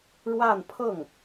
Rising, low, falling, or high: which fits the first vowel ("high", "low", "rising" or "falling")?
falling